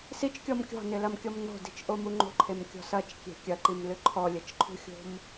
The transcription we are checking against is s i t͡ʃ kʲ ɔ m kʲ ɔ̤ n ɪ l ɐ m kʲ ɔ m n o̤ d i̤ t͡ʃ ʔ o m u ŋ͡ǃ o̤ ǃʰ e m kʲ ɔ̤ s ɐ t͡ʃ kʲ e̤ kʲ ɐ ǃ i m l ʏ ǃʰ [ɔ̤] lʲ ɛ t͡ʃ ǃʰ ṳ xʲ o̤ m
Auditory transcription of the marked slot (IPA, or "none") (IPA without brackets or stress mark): ɔ